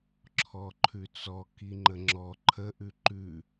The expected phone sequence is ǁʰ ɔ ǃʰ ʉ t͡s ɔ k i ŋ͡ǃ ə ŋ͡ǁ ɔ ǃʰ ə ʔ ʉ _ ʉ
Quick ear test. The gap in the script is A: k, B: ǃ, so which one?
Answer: B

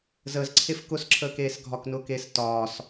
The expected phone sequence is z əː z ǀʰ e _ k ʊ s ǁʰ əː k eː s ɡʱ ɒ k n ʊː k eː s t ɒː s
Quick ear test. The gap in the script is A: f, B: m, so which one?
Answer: A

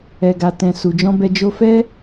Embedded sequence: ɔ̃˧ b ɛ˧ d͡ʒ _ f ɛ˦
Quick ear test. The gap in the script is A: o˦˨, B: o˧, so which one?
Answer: B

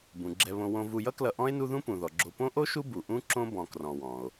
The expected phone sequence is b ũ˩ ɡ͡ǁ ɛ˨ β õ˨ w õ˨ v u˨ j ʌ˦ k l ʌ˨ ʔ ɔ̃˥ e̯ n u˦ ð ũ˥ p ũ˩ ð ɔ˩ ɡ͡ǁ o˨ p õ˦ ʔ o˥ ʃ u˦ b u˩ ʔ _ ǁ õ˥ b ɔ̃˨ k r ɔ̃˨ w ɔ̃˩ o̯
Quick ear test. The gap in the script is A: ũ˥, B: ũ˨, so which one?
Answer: A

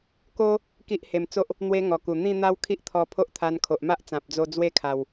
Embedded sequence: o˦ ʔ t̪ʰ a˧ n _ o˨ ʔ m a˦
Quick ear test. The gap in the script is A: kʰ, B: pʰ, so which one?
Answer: A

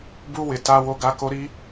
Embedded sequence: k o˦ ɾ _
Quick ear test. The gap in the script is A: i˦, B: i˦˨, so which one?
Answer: A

